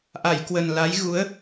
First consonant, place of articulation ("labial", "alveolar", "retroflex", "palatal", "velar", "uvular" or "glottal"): glottal